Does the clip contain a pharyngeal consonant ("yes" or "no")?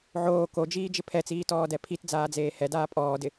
yes